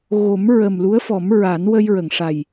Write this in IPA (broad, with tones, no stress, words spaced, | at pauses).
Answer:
ɣo˨˩˦m ɹə˨˩mlu˧˥ə̯fɔ˨˩˦m ɹa˨˩˦nwə˧jɹə˨˩˨ŋʂa˨˩j